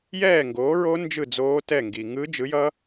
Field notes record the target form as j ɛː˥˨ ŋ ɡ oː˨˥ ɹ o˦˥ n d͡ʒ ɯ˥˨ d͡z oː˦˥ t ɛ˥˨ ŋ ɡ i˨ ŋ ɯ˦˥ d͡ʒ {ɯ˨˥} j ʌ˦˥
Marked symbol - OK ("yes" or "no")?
yes